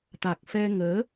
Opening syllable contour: low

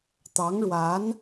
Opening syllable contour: rising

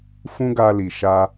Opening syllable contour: high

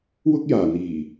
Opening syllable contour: high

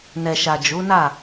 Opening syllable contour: low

